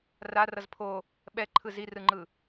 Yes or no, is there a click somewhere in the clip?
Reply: yes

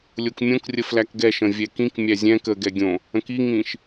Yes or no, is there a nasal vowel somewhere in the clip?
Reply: yes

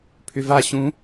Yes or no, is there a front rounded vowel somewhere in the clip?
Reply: yes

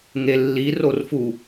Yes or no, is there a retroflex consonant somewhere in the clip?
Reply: no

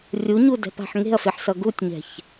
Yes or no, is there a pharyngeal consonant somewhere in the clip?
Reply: yes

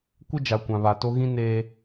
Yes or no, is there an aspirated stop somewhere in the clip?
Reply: no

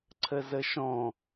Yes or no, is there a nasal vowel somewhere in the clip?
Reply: yes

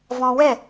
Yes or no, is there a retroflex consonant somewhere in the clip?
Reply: no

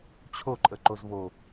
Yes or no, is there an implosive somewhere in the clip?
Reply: no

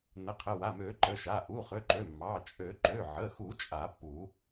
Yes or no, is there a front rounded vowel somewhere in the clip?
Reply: yes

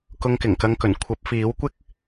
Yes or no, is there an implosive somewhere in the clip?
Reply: no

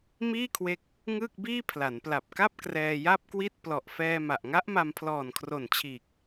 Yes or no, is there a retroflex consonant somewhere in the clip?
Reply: no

